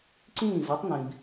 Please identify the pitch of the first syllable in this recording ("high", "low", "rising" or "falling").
falling